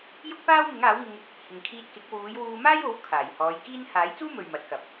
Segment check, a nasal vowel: absent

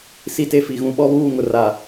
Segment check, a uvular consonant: absent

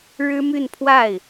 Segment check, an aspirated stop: present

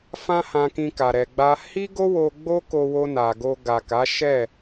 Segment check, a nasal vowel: present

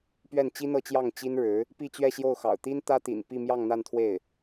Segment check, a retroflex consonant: present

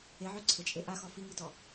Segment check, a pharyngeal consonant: present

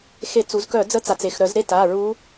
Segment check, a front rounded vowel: present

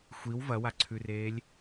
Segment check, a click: present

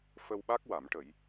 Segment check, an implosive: present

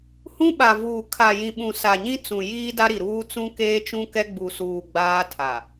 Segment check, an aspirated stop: present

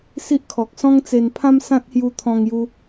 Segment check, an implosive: absent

